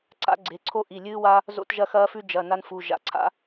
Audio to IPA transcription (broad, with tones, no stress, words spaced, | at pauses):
ǀa̰˦ɡ͡ǀe˩˧˩ǀʰo˦ʔi˩˧˩ lʲɨː˦wa˦ | zo̰˦tʒɐ˦xɐː˦fʉ˦ d͡ʒɐ˩˧˩ na˦nfu˩˧˩ ʒa̰˩˧˩ǀʰa̰˦